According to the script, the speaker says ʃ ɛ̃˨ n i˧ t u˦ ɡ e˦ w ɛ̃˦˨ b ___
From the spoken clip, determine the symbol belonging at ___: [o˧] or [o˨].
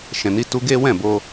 o˧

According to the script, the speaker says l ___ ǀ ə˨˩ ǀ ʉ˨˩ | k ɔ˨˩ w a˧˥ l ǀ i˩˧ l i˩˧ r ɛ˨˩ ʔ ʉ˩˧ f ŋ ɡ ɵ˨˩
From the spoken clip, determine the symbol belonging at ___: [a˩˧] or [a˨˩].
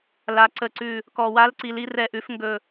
a˩˧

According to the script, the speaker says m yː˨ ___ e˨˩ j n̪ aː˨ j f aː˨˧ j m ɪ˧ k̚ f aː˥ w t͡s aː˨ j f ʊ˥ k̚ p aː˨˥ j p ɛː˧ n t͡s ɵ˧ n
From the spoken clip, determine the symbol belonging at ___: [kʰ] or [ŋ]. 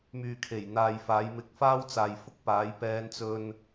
kʰ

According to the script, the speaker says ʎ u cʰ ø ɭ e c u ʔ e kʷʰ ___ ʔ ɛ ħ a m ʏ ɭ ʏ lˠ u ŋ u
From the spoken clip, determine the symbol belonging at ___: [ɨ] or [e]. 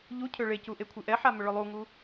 ɨ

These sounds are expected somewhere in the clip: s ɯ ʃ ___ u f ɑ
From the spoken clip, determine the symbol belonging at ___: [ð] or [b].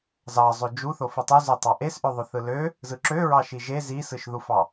ð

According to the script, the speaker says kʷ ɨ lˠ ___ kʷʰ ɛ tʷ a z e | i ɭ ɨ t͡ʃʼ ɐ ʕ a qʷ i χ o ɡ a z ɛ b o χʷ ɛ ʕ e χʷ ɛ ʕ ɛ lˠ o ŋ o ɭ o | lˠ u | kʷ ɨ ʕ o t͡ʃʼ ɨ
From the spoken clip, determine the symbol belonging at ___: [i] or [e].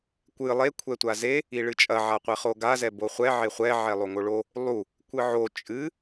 e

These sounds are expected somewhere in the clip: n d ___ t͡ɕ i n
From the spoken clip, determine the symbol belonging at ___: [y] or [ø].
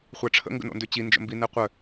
ø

